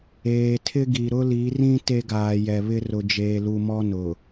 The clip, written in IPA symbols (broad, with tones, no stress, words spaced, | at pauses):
eː˨ tʰɪ˦ɡi˨ ɾʊ˦li˨˦rĩ˦ te˦ɡaː˨jɛ˨βɪ˦ rʊ˨d͡ʒeː˨lu˨mɔ˦ nʊ˨